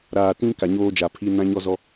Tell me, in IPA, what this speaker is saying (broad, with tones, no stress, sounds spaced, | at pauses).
ɾ aː˨ t ĩ˦ k a˨ ɲ oː˦ d͡ʒ a˨ pʰ i˦ n ã˦ ɲ ɔ˦ z ɔ˦